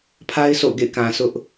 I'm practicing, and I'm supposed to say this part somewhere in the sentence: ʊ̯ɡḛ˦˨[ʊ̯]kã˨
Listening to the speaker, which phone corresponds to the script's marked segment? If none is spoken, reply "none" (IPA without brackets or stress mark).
ɪ̯